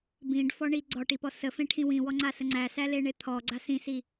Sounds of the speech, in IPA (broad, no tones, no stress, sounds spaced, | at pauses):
b ĩ ɖ f ɔ ɳ i ɡ͡ǀ ɔ ʈ i p ɔ s ə f ẽ ʈʰ ĩ w ĩ w ɔ ŋ͡ǀ a s ə ŋ͡ǀ æ s æ l e ɳ e t̪ʰ ɔ ɡ͡ǀ a s ĩ s i